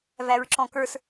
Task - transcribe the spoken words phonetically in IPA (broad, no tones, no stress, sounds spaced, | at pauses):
v æ ɹ ǁ ɔ̃ k ə˞ s